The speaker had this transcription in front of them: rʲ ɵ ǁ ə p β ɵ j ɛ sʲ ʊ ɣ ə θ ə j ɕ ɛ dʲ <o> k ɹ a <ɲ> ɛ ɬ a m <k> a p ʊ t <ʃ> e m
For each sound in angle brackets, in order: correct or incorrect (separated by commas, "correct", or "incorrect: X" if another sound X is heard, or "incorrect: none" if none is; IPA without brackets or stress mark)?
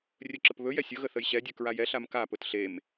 incorrect: ɵ, incorrect: j, correct, incorrect: ɬ